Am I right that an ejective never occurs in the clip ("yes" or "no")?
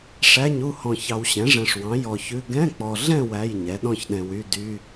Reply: yes